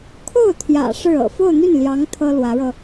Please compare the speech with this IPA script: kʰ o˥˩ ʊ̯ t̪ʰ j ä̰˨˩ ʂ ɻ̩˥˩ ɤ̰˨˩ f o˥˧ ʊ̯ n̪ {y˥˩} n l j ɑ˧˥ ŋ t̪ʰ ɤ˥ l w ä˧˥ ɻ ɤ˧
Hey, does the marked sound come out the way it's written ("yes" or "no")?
yes